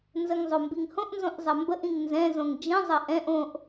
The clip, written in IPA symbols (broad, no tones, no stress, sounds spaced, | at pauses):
n z ə ŋ zˤ o m b i ŋ h õ ʔ n z õ ʔ zˤ ɐ m b ə ʔ ĩ ŋ n z ɛ̃ z õ ŋ d͡ʒ ĩ zˤ ɐ ʔ ɛ̃ ʔ õ ʔ